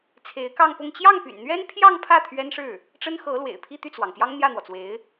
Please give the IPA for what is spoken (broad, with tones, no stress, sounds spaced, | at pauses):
t͡sʰ e˧˥ ɪ̯ k ɑ˥˧ ŋ p ʊ˥˧ ŋ t͡ɕ j ɑ˥˩ ŋ p y̰˨˩ n n̪ ɥ ɛ˥ n pʰ j ɑ˥˧ ŋ pʰ ä˥˩ t̪ʰ ɥ ɛ˥ n ʂ ɻ̩˥˩ | ʈ͡ʂ ə˥ n x ɤ˧˥ l w ḛ˨˩ ɪ̯ pʰ i˥˧ t̪ y˥˩ t͡s w ɑ˩ ŋ p j ɑ˥ ŋ n̪ j ä˥˩ n̪ w ɔ˩ t͡s w e˧˥ ɪ̯